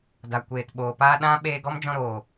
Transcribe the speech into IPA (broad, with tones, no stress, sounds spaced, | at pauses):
d a˨ kʷ eː˨ t ɓ oː˨ p aː˦ ɗ ã˦ ɓ eː˧ ɡ ɔ˦ m d͡ʒ ɔ̃˧ ɾ oː˨